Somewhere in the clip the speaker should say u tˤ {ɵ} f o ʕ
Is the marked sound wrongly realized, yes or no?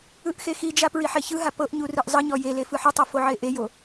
yes